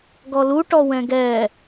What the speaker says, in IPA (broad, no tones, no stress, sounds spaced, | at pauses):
ɡ ɔ l u ʈ ɔ w ɛ̃ ɡ ɛ